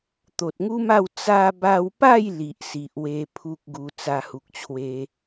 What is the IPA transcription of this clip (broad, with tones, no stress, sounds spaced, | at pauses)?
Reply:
t̪ o˨ t̚ ŋ u˦ m a˥˧ w t͡s a˧ b a˧ w p a˥˧ j l i˨ ʔ s i˨ ʔ w e˧ pʰ u˦ k̚ ɡ u˧ t͡s a˧ h u˨ k̚ t͡ɕʰ w e˧